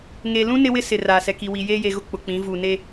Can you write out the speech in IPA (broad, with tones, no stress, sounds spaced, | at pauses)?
ŋ e˨ l ũ˦ n ɪ˦ w ɪ˦ s ɪ˨ r aː˨ s ɛ˨ k i˨ w i˨ j eː˦ j e˨ ɣ ʊ˦ k͡p ʊ˨ k͡p ĩ˨˦ v u˨ n e˦